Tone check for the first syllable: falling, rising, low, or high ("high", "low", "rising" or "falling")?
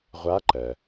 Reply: rising